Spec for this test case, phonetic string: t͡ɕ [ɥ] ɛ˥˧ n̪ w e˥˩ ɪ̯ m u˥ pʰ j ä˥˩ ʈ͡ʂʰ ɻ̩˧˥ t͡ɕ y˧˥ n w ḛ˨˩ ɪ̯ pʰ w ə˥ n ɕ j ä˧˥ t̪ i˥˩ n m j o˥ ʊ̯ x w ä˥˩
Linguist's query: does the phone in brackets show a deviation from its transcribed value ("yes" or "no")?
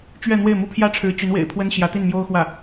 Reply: no